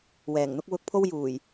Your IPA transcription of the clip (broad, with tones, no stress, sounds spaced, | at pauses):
w ɛː˨˩ ŋ n̪ ʊ˥ k̚ w ʊ˧ k̚ pʰ o˥ w j uː˨˩ j